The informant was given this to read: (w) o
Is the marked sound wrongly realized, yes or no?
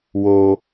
no